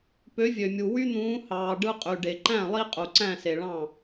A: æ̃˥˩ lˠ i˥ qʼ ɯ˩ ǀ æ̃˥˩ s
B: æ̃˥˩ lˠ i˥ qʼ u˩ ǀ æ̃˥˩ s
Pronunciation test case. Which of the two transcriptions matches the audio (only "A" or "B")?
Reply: B